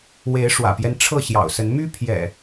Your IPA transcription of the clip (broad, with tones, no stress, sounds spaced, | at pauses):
w e˨˦ ɪ̯ ʂ w ä̰˨˩ p j ɛ˦ n ʈ͡ʂʰ ɤ˥˨ ɕ j ɑ̰˨˩ ʊ̯ s ə˨˦ n m y˦ pʰ j ɛ̰˨˩